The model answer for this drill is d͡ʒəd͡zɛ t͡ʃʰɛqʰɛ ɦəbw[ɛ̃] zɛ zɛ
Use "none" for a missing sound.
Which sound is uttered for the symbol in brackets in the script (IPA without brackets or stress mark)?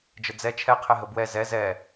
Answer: ɛ